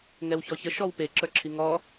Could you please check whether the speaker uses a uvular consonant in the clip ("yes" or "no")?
no